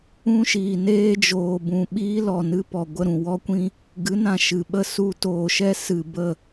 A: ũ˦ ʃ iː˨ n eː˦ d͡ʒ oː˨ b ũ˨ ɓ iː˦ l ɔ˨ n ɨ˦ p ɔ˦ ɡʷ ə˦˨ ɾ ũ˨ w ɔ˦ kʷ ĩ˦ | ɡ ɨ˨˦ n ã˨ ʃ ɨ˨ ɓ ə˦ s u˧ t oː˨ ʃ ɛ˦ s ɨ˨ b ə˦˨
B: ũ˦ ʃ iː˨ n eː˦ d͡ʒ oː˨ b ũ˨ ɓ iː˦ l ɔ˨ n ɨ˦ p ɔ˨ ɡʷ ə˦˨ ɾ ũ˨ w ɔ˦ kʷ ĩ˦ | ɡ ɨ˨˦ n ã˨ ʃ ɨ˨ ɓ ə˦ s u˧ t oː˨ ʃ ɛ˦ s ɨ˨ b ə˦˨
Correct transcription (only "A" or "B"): B